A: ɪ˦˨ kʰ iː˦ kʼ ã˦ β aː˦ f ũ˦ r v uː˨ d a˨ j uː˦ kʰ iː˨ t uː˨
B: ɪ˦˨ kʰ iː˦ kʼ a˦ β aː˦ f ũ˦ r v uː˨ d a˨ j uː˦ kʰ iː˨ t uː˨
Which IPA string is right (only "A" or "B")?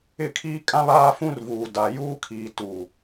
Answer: A